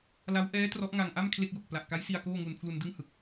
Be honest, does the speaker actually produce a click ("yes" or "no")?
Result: no